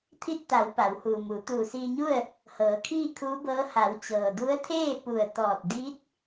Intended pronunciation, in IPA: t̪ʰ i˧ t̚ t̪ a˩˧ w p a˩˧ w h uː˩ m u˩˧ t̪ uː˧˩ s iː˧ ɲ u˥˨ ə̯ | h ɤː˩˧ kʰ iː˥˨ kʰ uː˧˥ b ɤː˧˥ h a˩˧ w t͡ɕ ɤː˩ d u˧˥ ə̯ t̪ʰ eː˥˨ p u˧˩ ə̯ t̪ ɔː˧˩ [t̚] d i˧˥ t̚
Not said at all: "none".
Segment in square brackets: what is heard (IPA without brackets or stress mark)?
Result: t̚